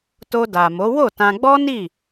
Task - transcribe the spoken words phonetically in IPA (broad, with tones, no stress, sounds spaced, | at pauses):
t o˧ d a˨ m o˨˦ w o˦˨ t ã˧ ɡ͡b ɔ˦ n i˦˨